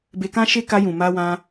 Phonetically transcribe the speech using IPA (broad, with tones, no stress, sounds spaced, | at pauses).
b e˧ k ã˦ ʃ e˦ k a˧ j ũ˨ m a˧ w ã˧